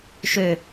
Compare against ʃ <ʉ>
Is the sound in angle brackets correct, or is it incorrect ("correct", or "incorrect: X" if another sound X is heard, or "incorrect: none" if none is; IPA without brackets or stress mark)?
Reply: incorrect: ø